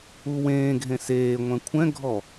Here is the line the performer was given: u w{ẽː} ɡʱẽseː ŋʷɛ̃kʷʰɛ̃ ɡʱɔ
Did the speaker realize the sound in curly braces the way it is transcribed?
yes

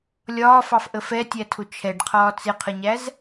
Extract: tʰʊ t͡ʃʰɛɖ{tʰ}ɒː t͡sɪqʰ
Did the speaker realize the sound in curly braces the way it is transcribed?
no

